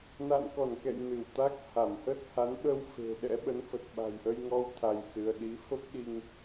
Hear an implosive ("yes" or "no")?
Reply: yes